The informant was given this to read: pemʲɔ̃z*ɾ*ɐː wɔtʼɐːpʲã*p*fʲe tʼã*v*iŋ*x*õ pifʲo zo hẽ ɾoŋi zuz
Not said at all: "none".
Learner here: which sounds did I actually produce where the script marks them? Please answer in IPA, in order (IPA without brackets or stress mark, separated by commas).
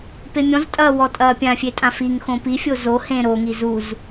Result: tʼ, none, f, x